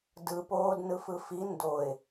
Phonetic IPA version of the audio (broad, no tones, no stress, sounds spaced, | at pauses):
d ɯ p oː d n ɯ f ɯ f i n d o ɪ̯